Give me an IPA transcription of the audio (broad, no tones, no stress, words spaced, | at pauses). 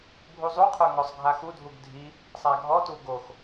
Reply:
bʱuzˤuqʰə˞ ŋɔsˤɡʱaxudʱuɡ dʱi | sˤaɡʱɔtu ɡox